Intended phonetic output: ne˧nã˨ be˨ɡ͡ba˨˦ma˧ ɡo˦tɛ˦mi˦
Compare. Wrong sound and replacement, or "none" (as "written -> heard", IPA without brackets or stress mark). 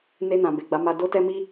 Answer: ɡ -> d